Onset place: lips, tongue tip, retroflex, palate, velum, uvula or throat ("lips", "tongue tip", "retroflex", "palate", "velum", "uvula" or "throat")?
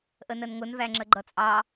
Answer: throat